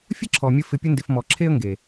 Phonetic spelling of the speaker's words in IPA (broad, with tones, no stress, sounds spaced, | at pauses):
fʲ ə˦ ǁʰ ɔ˨ mʲ ə˧ f ɪ˧ pʲ ə˦ n d ɪ˧ f m ɔ˨ ǁʰ e˦ ə̯ ŋ ɡ e˨